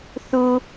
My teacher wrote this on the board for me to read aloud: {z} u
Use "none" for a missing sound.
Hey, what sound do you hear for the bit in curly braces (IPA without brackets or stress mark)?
θ